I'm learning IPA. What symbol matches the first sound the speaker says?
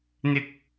n̪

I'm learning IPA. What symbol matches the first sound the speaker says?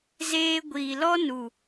z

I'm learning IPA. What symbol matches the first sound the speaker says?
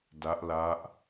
d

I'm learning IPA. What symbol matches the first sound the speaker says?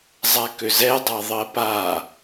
zˤ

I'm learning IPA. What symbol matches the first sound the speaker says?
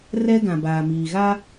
r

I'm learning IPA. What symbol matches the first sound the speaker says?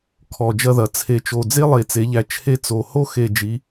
kʰ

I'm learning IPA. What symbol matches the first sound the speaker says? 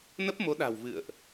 n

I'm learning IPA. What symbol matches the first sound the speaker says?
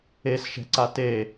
e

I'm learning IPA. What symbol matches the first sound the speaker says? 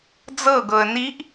d͡z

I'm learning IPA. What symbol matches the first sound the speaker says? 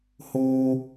h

